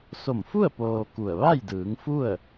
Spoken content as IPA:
s o˧˩ m f u˥˨ ə̯ p oː˧ k u˧˩ ə̯ ʋ a˥˨ j d ɯː˩˧ ŋ f u˥˨ ə̯

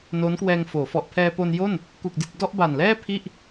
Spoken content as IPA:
n oː˦˥ n k w ɛː˧ ŋ f oː˩˦ f ɔ˨˩ ʔ pʰ ɛː˧ p o˧ n j o˥˩ n | k u˨˩ k̚ d i˨˩ t̚ d ɔ˥˩ ʔ b a˨˩ n l ɛː˥˩ pʰ i˥˩ ʔ

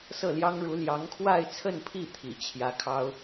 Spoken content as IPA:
s ɤ˥˩ l j ɑ˥ ŋ ɻ u˧˥ l j ɑ˧˥ ŋ kʰ w a˥˧ ɪ̯ t͡sʰ ə˥˧ n pʰ i˥˩ t̪ʰ ḭ˨˩ t͡ɕʰ j ä˧˥ kʰ ɑ˥ ʊ̯

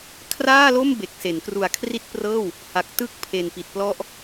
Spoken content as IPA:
kʰ r aː˥˩ l o˥˩ m b e˨˩ k̚ s e˩˦ n k r u˨˩ a̯ kʰ r i˦˥ t̚ p r ɤː˥˩ w | h a˨˩ k̚ t ɯ˦˥ k̚ pʰ e˨˩ n p i˨˩ t̚ p l ɔ˦˥ ʔ

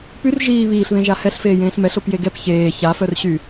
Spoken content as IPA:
p y r ʒ iː β iː ɬ β ẽ ʒ a h ɛ ɬ f eː j ẽː ɬ m ɛ ɬ o p j e ɡ ɛ p ç eː ç a f œ r ɕ y

